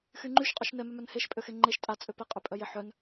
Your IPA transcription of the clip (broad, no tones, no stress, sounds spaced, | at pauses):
x y ŋ͡ǃ y ʃ qʼ œ ʃ n ɛ m œ m œ n h e ʃ pʼ ø x e ŋ͡ǃ e ʃ tʼ a t͡sʼ ø p ɛ qʼ ø pʼ œ j e ħ œ n